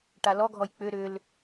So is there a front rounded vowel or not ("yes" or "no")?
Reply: yes